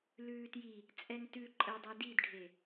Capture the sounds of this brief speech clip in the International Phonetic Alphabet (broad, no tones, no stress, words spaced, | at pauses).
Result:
lʉːtji | t͡sʼɛŋtʉ ǃʼədˤɛ didɖʱe